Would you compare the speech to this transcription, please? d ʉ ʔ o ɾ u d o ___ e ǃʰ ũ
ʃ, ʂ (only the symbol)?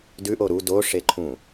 ʂ